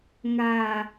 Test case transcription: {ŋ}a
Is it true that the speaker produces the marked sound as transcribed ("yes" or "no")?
yes